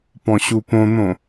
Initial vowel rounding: rounded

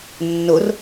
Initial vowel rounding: rounded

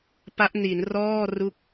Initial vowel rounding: unrounded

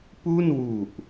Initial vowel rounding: rounded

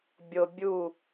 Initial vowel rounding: rounded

